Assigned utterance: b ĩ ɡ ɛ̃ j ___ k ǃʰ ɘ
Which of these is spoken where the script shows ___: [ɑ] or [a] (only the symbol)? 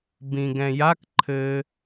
a